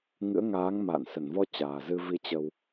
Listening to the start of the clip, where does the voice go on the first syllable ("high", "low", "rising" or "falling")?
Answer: rising